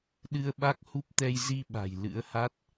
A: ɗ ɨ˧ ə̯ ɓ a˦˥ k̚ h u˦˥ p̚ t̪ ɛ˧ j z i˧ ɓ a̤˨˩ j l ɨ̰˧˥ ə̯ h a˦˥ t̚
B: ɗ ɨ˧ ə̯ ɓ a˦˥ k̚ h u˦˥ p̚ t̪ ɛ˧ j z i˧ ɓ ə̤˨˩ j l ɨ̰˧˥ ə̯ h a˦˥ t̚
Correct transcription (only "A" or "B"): A